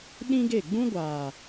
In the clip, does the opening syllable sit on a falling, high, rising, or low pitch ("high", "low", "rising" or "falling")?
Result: high